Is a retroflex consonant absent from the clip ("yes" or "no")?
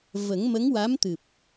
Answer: yes